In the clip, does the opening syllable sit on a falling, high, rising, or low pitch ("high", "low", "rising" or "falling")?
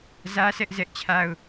high